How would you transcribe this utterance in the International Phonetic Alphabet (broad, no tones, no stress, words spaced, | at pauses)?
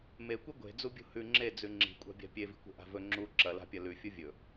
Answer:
mekʷi ɡʷe̤d͡zubʲṳ hʉ ŋ͡ǁed͡zʉ ŋ͡ǁi̤kʷʼa̤bʲa̤ pʲevi̤kʷe̤ʔa̤ vɵ ŋ͡ǁu ǁɐla̤pʲɐ lʉfʲu vʲɵ